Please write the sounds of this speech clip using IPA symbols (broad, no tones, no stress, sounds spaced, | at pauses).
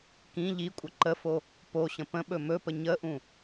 k ĩ ʎ i kʷʼ ə ǃ ə f o | p o ɕ ə̃ p ə̃ ɓ ɵ m ɵ p ə ɲ ə ʔ ũ